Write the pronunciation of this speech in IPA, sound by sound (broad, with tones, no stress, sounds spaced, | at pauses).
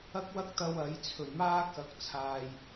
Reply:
ɐ˥ k̚ w ɐ˥ k̚ t̪ ɐ˧ w ɐ˨˥ j t͡sʰ ɵ˨˩ ɥ m aː˥ k ɐ˨˥ k̚ t͡sʰ aː˨ j